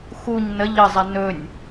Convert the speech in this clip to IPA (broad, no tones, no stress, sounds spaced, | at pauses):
x u ɲ n ə ʎ ə zˤ ɛ n ɵ nʲ